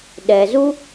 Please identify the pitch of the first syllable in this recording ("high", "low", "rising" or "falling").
low